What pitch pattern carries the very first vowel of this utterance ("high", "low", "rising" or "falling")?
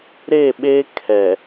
falling